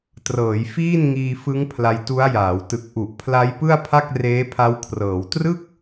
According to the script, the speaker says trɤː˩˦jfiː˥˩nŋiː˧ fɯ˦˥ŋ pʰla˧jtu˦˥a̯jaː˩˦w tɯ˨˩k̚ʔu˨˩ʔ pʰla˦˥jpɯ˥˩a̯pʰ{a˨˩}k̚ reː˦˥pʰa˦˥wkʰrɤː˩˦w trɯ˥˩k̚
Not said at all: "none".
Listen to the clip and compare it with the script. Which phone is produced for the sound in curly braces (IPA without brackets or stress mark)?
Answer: a˥˩